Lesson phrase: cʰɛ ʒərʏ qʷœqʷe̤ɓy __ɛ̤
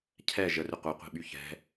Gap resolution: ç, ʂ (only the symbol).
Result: ç